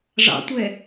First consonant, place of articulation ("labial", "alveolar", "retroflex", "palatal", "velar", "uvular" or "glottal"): retroflex